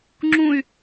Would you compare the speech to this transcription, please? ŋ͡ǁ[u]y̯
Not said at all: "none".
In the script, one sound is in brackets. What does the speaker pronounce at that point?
ũ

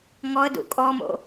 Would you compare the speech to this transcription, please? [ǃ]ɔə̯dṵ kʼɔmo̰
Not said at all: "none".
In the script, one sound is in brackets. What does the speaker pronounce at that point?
ŋ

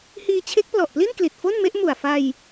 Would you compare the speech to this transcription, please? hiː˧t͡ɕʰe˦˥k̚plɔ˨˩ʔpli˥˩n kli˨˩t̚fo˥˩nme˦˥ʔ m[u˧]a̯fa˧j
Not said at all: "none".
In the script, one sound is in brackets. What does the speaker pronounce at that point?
u˨˩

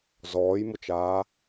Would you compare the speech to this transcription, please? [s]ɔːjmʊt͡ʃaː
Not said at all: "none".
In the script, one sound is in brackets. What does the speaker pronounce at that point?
z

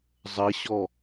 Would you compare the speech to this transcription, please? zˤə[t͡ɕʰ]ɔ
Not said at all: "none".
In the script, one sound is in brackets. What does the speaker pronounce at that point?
ɕ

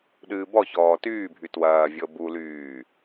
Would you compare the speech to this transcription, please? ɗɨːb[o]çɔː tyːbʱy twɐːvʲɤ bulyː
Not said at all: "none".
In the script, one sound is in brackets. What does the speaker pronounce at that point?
ɔ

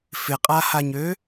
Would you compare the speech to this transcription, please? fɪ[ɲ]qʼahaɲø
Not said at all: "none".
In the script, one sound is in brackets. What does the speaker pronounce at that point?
none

